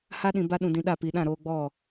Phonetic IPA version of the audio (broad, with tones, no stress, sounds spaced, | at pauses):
h a˦ ɗ ĩ˧ b a˦ ɗ ũ˧ d ĩ˧ ɗ a˦˨ p i˨ ɗ ã˦˨ ɾ oː˧ ɡ͡b ɔ˦˨